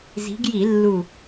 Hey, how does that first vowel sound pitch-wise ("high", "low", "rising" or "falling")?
rising